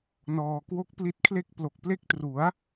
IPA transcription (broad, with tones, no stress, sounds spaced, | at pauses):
n ɔː˧ k w o˦˥ k̚ p l i˦˥ t̚ kʰ l e˥˩ k̚ p l o˨˩ k̚ p l e˦˥ k̚ t r u˩˦ a̯